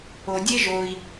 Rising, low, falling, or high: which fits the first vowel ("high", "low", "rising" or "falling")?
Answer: low